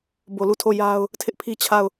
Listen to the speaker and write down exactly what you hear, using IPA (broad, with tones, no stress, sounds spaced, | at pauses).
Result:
b o˨ l u˦˨ tʰ o˦˨ j a˦ ʊ̯ | tʰ ɪ˦ ʔ pʰ i˦ t͡ɕʰ a˦˨ ʊ̯